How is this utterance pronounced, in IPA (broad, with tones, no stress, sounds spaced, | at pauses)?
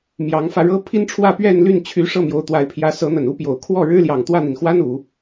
m j ɑ˧˥ ŋ f ä˧ ɻ ɤ˥ pʰ i˥ n ʈ͡ʂʰ w ä˥˧ p ɥ ɛ˥˧ n l y˥˩ n t͡ɕʰ y˧˥ ʂ ɤ˥˩ m j o˧˥ ʊ̯ t̪ w a˧˥ ɪ̯ pʰ j ä˧˥ s ɤ˧˥ n̪ ə˨˩ n u˥ p j o˨˩ ʊ̯ kʰ w ɔ˥˩ ɻ ɻ̩˥ l j ɑ˨˩ ŋ t̪ w ä˥˩ n̪ i˩ n x w a˥ n u˨˩˦